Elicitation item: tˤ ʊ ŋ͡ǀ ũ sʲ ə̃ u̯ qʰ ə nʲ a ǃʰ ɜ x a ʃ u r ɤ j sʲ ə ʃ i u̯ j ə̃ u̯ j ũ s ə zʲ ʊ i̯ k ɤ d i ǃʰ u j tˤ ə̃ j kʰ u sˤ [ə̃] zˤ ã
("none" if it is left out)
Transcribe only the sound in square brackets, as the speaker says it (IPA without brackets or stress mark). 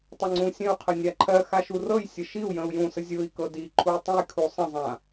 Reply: ə̃